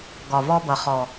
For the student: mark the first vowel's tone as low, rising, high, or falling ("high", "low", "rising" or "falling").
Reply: low